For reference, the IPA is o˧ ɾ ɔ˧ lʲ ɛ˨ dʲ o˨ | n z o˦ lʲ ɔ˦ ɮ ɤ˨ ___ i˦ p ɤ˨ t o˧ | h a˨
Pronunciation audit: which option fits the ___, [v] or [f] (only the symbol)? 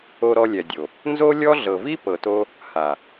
v